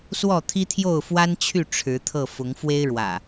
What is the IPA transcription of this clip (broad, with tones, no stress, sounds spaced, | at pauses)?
s w ɔ˥˨ t̪ʰ i˦ t̪ʰ j o˥˨ ʊ̯ f w a˦ n t͡ɕʰ y˥˨ ʈ͡ʂʰ ɻ̩˨˦ t̪ʰ ɤ˥˨ f ʊ˨˦ ŋ f w e˦ ɪ̯ ɻ w ä̰˨˩